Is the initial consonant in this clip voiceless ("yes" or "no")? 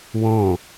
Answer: no